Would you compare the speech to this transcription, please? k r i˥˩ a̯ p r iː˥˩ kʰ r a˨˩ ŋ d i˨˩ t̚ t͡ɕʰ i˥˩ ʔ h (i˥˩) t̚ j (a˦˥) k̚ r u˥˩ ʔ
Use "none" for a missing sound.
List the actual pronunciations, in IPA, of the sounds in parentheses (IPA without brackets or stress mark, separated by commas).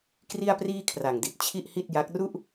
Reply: i˥˩, a˦˥